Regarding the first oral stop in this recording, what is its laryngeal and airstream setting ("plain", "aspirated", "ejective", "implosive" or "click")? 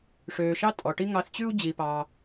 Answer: ejective